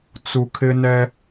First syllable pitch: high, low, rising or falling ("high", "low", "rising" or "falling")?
low